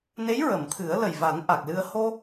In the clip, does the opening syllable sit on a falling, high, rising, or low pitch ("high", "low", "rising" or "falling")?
rising